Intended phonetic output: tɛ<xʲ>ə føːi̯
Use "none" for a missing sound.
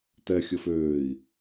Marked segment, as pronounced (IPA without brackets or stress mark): xʲ